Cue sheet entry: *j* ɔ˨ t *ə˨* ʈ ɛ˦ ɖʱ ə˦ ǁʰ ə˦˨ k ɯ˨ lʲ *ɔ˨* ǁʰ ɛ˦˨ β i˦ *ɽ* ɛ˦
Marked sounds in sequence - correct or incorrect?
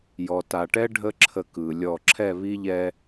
correct, incorrect, incorrect, incorrect

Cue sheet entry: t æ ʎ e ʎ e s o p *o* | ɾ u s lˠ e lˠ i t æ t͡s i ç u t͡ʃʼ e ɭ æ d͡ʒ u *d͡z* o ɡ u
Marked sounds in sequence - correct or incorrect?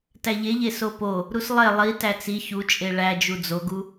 correct, correct

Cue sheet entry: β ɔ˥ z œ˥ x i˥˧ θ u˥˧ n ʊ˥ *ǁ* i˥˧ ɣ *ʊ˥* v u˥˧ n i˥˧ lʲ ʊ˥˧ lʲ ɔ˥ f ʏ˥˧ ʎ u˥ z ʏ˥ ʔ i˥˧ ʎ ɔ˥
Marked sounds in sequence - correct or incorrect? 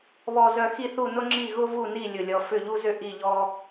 incorrect, correct

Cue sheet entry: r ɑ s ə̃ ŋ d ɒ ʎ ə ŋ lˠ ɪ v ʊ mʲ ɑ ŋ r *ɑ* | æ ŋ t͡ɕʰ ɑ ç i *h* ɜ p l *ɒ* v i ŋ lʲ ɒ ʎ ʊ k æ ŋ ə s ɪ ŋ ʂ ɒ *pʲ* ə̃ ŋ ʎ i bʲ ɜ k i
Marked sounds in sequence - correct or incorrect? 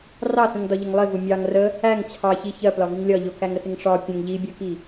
incorrect, incorrect, correct, correct

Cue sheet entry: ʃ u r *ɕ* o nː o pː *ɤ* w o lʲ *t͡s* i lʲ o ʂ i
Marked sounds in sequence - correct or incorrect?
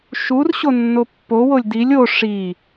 correct, incorrect, incorrect

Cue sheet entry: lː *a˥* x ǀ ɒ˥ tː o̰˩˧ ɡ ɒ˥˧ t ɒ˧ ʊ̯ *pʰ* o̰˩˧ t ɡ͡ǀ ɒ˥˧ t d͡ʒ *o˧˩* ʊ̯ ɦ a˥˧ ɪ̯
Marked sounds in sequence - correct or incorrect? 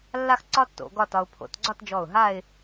correct, correct, incorrect

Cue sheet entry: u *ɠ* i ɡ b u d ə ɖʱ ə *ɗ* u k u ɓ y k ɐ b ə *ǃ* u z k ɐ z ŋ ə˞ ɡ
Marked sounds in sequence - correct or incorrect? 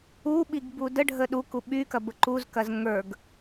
incorrect, correct, correct

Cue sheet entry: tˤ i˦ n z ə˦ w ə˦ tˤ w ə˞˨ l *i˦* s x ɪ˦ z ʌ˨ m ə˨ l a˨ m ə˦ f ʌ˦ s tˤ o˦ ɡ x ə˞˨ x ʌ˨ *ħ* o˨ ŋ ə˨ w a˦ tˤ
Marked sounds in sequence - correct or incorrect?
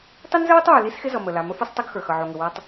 correct, incorrect

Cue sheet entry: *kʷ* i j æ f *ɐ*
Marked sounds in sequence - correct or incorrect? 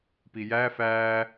incorrect, incorrect

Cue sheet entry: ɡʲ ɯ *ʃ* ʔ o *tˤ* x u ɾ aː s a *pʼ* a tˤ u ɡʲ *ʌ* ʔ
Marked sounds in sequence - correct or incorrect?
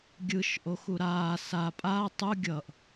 correct, incorrect, correct, correct

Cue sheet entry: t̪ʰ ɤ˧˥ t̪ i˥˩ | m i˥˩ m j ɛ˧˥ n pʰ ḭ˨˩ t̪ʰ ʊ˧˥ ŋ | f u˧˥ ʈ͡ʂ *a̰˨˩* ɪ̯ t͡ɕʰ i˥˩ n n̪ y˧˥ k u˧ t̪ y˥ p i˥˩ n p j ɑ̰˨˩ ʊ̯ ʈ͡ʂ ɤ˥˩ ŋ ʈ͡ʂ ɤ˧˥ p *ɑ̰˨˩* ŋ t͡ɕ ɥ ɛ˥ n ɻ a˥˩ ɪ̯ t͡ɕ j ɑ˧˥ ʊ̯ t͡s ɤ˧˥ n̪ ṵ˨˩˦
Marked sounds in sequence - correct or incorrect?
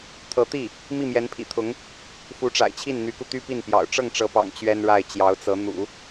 correct, correct

